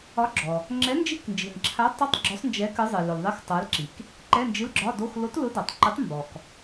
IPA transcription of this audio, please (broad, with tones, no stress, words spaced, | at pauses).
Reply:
ɒ˨˥ɡ͡ǁɔ˩ | ŋ͡ǁɛ˨˥nd͡ʒi˧˥˧knd͡ʒi˩nǁʰa˨˥ tˤʊ˧˥˧tˤ ɡ͡ǁʊ˨˥sˤ nd͡ʒɛ˨˥ kɨ˨˥zˤɨ˩ lʊ˩l ðˤi˧˥˧xtˤa˨˥lǁi˩k | ǃɛ˧˥˧nd͡ʒɨ˧˥˧lɡ͡ǁɒ˧˥˧do˧˥˧x lo˨˥tlʊ˨˥dɒ˩tˤǃʊ˨˥tˤ mbɔ˩k